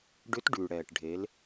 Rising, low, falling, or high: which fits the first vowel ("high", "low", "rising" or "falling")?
rising